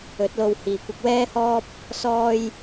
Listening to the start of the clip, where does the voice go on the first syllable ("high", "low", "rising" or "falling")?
rising